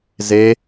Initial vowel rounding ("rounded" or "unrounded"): unrounded